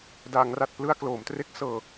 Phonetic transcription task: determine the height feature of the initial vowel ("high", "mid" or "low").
low